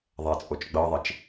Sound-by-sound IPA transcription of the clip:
ðˤ ɛ t͡sʼ o t͡ʃ ɡ͡b ɤ ðˤ i t͡ʃ

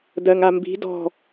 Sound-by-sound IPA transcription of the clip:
d ɜ ŋ a m b i̤ d ɔ̤

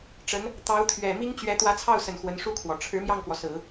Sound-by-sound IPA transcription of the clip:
ʈ͡ʂ ə˧˥ n | t̪ ɑ˧˥ ʊ̯ t̪ʰ ɥ ɛ˨˩ m i˥ ŋ t͡ɕ ɥ ɛ˧˥ t̪ w ä˧˥ t͡sʰ ɑ˥˩ ʊ̯ s ə˨˩ n x w ə˧˥ n ʂ u˥ kʰ w ɔ˨˩ ʈ͡ʂʰ ɻ̩˧˥ m j ɑ˥˩ ŋ k w ɔ˩ s ɹ̩˨˩˦

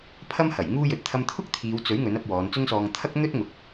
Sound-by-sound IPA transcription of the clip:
pʰ ɐ˥ m h ɐ˨˩ j ŋ uː˥ j ɵ˨˥ t̚ t̪ʰ ɐ˧ m t̪ʰ ʊ˥ k̚ t̪ʰ iː˨˧ w t͡s ɵ˨˥ ɥ ŋ ɵ˨˥ n ɐ˧ p̚ w ɔː˨˧ n t͡s ʊ˥ ŋ s ɔː˧ ŋ t̪ʰ ɐ˥ k̚ n̪ ɵ˥ t̚ ŋ ʊ˨˥ k̚

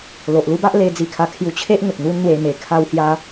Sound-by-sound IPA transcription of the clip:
l o˨ ʔ l u˦ b a˦ ʔ l e˧ d͡z i˧ kʰ a˧ kʰ j u˧ t͡ɕʰ e˦ ʔ ŋ ə˨ k̚ n̪ u˦ n n̪ w e˧ m e˨˩ kʰ a˦ w h j a˦

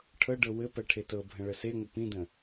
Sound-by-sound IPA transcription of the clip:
ʈʰ ɤ ɖ ɤ w ɘ p ɜ ʈʰ e t ɤ bʱ ə̃ ɭ ə s e ŋʷ ə p ĩ d ə̃

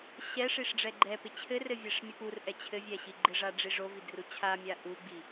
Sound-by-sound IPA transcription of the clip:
ɕ ɛ ʂ i ʂ ɖ͡ʐ ɛ ɡ͡ǃ ɛ p ɪ t͡ɕʰ ɘ r ɘ vʲ ɛ ʂ mʲ ɛ p u r ʔ ɛ t͡ɕʰ ɘ vʲ ɛ ɕ i ɡ͡ǃ ɪ ʐ a ɖ͡ʐ i ʐ o v i d r u t͡ɕʰ a mʲ a ʔ u ɡ͡b i

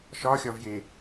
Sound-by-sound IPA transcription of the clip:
ʃ ɒ xʲ ɒ v j e

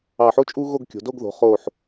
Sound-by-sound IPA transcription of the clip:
ɑ˧˩ ħ o˥ t͡ʃʼ u˥ ɣ o˥˧ ɡ kʲ o̤˩˧ d o˥˧ ɡ ð o̤˩˧ χ o˧˩ ħ

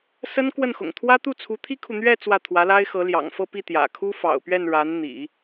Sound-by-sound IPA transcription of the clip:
s ə˥ n k w ə˥˩ n x ʊ̰˨˩ ŋ t̪ʰ w ä˥ t̪ u˥˩ t͡sʰ u˧˥ t̪ʰ i˥ kʰ u˨ n̪ ɥ ɛ˥˧ t͡s w ä˥˩ t̪ʰ w ä˧˥ l a˥ ɪ̯ x ɤ˧˥ l j ɑ̰˨˩ ŋ f ɤ˥˧ p i˥˩ t̪ j ä̰˨˩ kʰ u˥ f ɑ̰˨˩ ʊ̯ p ɥ ɛ˥˩ n ɻ a˧˥ n n̪ ḭ˨˩˦

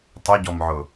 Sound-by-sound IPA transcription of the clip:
tˤ i ɟ ɔ m ʕ ʊ

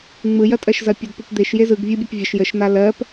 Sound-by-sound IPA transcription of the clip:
ŋ͡m ɯ j ɐ tʼ ɜ ʃ z ɐ pʲ ɔ d p u p d̪ e ʃ j e z ɯ ɡ vʲ ɯ bʲ e p vʲ ə ʃ j ə ʃ n̪ a l ɜ p

